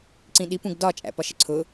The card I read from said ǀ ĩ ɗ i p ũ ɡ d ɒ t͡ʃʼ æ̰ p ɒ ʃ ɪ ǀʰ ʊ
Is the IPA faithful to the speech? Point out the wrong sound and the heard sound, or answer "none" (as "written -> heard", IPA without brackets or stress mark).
none